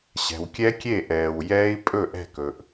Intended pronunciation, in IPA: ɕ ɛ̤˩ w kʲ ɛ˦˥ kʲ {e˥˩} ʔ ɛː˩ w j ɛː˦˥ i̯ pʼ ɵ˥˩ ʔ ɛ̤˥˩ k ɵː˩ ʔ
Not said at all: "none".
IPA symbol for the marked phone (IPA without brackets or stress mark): e˥˩